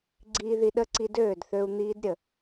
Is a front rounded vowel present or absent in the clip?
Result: present